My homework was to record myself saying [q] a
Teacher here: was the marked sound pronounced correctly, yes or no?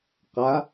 yes